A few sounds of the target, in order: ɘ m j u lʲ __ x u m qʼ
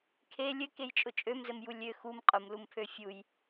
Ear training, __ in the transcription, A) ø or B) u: A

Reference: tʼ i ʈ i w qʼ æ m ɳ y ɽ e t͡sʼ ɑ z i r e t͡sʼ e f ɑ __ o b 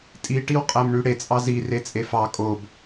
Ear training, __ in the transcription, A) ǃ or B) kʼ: B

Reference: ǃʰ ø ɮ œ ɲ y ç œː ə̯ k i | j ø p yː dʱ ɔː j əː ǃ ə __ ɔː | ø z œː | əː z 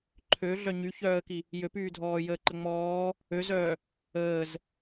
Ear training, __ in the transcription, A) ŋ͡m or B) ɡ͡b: A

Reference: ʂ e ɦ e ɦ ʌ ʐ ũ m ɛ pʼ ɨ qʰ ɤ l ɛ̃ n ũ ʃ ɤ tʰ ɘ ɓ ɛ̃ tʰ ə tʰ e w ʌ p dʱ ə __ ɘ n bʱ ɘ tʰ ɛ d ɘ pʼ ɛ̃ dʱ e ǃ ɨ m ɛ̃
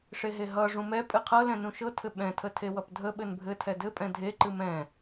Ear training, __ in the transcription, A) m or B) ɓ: B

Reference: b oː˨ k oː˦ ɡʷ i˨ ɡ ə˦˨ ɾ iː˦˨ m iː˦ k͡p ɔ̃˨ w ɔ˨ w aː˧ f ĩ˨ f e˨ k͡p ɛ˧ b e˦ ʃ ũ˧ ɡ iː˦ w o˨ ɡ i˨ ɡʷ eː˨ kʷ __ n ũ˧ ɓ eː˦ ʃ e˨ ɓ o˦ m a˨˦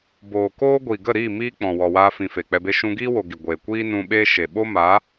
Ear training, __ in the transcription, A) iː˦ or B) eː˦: A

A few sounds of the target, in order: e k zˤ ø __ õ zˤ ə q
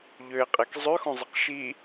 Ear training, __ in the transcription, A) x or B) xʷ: A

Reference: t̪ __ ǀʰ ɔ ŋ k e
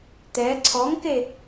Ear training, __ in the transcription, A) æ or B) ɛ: B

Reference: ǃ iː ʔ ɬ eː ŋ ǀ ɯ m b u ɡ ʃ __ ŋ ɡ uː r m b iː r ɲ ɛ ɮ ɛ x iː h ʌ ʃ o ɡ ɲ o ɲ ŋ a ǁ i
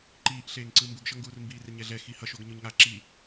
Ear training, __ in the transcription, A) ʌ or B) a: A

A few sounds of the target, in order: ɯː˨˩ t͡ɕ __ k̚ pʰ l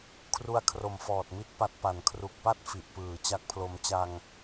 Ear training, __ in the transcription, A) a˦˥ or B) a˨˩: A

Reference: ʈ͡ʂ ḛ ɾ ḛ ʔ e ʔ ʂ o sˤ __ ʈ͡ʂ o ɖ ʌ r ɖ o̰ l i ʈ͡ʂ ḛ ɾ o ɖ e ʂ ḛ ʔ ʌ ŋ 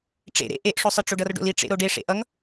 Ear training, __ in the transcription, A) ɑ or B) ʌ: B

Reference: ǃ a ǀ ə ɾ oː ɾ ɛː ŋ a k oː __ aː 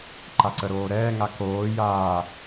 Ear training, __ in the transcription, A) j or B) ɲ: A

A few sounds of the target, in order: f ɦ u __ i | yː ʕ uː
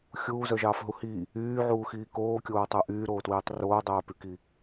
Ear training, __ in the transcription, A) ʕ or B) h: B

